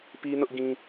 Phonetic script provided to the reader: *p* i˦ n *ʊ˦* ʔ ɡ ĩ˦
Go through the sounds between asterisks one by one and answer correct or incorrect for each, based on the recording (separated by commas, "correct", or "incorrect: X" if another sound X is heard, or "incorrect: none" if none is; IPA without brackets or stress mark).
correct, correct